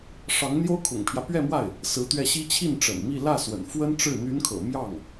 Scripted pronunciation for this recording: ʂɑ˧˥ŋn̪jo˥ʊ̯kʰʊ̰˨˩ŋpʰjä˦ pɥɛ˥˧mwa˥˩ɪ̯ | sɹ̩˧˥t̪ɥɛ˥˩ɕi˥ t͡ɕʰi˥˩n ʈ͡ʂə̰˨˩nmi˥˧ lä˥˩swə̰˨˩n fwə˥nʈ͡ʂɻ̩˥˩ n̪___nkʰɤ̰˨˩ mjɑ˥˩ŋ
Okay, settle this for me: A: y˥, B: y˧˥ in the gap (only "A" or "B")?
B